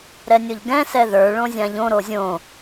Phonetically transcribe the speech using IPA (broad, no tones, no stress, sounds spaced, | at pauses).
ɾ ɛ nʲ o ʎ ɡ ɛ̃ s ɛ ð ə˞ ɭ õ zʲ ã ʎ õ ɾ o zʲ õ